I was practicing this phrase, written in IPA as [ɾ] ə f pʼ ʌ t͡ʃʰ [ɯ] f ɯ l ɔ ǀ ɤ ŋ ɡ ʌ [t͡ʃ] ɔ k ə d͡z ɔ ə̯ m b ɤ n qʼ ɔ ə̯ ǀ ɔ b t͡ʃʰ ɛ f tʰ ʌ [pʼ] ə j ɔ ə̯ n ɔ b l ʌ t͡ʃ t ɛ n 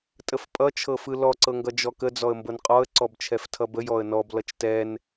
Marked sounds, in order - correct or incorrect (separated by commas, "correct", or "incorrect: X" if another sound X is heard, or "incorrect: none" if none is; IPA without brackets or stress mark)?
incorrect: tʼ, incorrect: ɤ, incorrect: d͡ʒ, incorrect: b